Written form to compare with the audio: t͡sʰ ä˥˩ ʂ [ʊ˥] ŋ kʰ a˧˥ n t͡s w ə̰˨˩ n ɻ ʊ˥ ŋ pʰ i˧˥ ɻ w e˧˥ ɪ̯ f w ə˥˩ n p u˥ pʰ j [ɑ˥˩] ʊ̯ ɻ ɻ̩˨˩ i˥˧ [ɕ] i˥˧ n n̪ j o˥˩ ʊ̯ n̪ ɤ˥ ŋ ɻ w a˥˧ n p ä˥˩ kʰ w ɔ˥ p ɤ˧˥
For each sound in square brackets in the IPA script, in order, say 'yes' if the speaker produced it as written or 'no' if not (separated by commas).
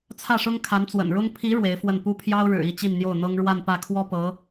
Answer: yes, no, no